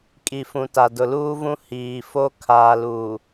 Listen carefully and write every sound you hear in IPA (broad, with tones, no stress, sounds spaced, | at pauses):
kʼ i˨ f ũ˨ t a˨ d ʊ˨ l uː˦ v ũ˦ h iː˨ f o˦ kʰ aː˨ l uː˨